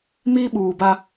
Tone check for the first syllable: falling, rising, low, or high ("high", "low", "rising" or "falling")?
high